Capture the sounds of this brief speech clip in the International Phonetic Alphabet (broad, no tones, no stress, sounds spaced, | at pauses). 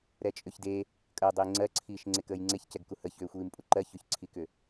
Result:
ɾ ɛ t͡ʃʼ ʏ ç d e | kʼ əː dˤ iː ŋ͡ǀ ɜ ǀʰ iː ʃ ŋ͡ǀ e k əː j ŋ͡ǀ e ç c ɛ ɡ k u h ə ç ʏː xʷ iː m pʼ u ǃ ɜ ç ʏ ç ǀʰ i k ʏ